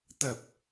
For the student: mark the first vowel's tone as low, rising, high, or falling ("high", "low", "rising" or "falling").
low